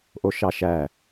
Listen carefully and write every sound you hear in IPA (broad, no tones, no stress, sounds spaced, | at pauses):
ʔ o ʃ ɑ ʃ æ